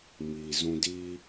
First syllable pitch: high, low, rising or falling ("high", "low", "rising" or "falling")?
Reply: low